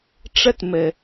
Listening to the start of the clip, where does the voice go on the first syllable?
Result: high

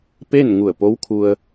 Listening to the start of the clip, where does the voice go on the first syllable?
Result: falling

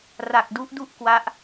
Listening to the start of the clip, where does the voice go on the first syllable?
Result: low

